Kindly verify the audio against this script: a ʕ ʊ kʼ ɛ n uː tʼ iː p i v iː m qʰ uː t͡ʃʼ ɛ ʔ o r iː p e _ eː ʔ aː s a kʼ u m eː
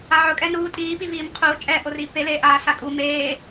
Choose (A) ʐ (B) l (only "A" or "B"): B